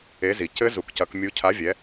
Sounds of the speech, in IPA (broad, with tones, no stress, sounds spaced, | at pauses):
e˨˥ z i˨˩ c ɘ˦˥ z u˨˥ k c ɐ˨˥ k mʲ u˨˥ cʰ a˨˥ vʲ ɛ˨˥